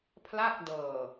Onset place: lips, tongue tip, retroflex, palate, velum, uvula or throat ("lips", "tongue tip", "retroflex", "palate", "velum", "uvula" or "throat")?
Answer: lips